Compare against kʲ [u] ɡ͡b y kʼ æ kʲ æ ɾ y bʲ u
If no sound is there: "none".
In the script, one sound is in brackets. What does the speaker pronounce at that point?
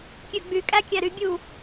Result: ø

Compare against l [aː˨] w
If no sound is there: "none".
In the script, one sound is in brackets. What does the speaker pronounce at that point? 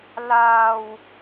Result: aː˨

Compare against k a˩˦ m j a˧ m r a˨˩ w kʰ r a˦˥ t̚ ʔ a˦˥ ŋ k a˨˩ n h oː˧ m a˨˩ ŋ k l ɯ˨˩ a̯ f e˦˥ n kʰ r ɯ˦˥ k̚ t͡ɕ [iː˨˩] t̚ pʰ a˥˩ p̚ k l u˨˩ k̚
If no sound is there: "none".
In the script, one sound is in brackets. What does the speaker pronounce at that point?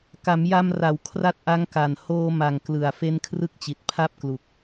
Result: i˨˩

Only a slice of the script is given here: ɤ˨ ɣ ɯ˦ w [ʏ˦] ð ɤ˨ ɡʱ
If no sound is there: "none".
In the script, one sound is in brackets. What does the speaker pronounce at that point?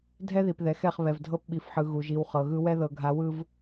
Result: ɛ˦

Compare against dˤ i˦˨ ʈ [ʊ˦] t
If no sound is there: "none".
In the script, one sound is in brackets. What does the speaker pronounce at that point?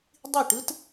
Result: ɯ˦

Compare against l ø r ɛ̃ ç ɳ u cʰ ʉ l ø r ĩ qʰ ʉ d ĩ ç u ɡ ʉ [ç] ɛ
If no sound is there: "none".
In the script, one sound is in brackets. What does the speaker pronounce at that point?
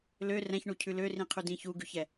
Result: ç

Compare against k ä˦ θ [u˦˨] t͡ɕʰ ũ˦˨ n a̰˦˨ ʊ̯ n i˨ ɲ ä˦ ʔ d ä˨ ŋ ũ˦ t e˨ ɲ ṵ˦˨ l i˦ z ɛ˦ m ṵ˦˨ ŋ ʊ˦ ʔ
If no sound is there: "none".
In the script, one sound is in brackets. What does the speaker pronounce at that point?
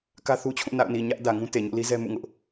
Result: u˦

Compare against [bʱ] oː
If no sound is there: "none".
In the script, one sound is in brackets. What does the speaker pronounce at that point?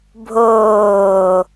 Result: bʱ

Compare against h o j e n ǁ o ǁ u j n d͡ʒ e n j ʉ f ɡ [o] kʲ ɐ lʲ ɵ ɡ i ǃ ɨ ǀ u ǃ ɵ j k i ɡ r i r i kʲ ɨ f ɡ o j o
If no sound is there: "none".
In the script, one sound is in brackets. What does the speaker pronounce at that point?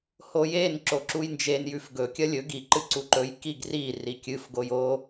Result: ɵ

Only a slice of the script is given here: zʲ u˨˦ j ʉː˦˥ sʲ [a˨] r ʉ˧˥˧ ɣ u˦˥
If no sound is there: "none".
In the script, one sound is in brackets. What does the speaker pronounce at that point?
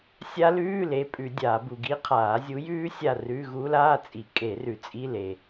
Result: a˦˨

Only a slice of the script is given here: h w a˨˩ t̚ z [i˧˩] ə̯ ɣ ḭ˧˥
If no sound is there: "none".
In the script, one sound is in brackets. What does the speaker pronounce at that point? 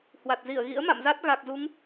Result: i˧˩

